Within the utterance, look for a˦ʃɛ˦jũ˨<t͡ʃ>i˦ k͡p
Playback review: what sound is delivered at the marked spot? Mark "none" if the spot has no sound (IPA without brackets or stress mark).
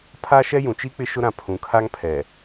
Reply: t͡ʃ